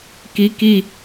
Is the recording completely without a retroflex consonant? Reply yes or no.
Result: yes